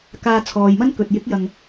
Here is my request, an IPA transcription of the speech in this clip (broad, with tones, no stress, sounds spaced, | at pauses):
k aː˨ t͡sʰ ɔː˨ j m ɐ˥ n k ɵ˨ t̚ j ɪ˨˥ k̚ j ɐ˨ ŋ